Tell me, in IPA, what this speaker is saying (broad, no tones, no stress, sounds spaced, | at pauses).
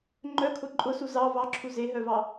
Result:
ŋ͡ǃ œ kʰ ʊ ǃʼ ʊ s u z ɑ v ɑ ǁʰ u z e ɦ œ v ɑ